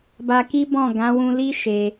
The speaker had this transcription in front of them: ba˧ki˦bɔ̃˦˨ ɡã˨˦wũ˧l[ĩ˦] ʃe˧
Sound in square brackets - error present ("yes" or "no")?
yes